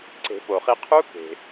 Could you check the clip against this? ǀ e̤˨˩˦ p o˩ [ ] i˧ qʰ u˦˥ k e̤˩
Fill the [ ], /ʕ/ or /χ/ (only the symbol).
χ